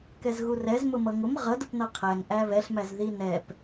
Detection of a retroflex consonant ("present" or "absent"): absent